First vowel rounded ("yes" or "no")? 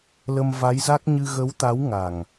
no